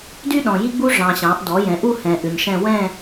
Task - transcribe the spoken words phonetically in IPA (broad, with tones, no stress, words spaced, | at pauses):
dy˥ ɗɔ̃˨ji˥ɡ͡bu˥ ʐɑ̃˨ɕɑ̃˩˥ʔ dɔ˩˥jɛ̃˩˥ʔu˥˧ hɛ̃˨ ʔʉ˨ɲʃɛ̃˥˧ wɛ̃˥˧